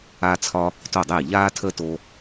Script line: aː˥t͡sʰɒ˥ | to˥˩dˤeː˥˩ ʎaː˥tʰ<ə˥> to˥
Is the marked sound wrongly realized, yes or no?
no